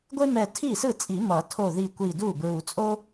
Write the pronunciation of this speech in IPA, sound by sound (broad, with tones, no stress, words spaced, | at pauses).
ɡʷe˥ mɛ˧˩ tʰi˥˩sɯ˥˩t͡sʼi˨˩˦ mʌ˨˩˦ tʰo˧˩ ði˧˩ kʷi˧˩du˥˩ bɹu˨˩˦t͡sʼo˥